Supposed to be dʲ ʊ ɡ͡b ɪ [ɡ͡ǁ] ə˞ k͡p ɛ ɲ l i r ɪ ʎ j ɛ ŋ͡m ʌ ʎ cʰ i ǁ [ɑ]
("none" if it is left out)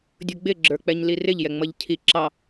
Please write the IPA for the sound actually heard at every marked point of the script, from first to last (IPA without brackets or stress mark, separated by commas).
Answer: ɡ͡ǁ, ɑ